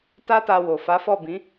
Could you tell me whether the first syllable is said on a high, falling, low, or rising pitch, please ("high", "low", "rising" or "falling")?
high